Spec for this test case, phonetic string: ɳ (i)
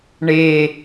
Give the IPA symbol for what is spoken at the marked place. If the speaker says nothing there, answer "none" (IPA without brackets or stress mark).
e